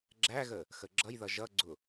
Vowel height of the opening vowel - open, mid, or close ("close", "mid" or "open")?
open